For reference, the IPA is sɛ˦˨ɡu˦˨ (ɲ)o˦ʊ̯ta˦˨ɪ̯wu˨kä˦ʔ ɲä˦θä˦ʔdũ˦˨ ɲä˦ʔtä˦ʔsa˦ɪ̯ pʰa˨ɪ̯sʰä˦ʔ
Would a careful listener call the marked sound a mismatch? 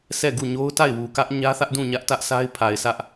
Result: no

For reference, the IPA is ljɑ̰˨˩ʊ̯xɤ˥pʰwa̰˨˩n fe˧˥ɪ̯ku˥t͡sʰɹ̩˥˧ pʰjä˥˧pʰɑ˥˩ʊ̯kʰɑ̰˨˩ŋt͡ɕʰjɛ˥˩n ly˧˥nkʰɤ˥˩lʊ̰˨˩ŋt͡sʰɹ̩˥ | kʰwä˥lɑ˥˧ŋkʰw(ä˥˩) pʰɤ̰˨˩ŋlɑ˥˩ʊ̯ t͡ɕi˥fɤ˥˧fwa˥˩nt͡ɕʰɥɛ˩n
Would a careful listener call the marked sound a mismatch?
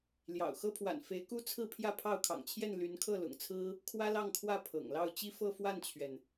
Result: no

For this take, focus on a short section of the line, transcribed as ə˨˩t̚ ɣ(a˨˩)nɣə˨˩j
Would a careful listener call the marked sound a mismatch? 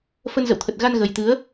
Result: yes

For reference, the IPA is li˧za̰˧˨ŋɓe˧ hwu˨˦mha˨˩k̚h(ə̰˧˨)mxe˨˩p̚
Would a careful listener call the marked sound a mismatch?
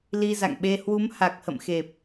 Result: no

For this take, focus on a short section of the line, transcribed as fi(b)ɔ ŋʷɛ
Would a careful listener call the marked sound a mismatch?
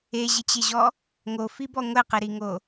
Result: no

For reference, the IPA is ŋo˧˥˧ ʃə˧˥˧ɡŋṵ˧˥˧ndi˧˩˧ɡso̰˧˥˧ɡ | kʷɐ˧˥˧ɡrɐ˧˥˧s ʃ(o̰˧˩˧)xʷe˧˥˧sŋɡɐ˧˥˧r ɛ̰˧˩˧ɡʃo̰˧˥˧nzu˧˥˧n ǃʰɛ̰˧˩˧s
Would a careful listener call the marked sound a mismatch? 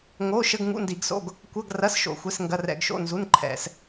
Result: no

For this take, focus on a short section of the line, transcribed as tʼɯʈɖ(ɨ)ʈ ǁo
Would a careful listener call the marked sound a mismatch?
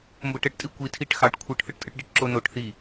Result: yes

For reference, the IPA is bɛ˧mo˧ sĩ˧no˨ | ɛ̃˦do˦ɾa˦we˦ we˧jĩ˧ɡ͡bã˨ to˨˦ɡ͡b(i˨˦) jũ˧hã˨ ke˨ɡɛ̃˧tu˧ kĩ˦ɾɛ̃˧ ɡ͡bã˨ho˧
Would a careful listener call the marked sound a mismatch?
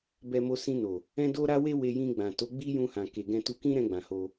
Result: yes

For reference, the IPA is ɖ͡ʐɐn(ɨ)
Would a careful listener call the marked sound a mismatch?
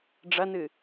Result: no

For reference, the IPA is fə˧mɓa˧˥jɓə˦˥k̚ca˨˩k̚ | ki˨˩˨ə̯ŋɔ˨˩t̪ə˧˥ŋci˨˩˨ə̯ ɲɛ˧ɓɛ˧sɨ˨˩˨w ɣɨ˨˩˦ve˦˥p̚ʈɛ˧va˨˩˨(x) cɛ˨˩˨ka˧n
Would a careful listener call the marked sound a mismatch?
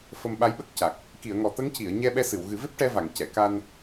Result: yes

